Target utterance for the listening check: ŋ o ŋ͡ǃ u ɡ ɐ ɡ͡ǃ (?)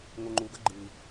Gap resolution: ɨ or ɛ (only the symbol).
ɨ